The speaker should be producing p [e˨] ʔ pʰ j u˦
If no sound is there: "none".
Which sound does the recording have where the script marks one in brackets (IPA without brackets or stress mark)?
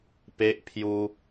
e˦